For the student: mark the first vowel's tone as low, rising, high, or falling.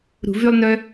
low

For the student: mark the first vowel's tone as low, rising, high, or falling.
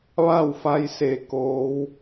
falling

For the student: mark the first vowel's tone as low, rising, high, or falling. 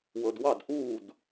low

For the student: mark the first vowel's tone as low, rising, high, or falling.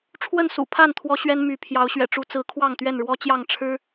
falling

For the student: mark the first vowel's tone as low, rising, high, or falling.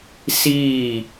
falling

